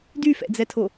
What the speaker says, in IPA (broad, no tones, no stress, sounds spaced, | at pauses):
d y f ɛ̰ d͡z ɛ tʰ o